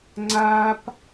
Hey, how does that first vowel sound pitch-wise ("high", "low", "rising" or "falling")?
high